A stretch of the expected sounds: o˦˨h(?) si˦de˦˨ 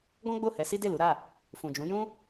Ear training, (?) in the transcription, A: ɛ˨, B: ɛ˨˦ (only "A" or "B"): B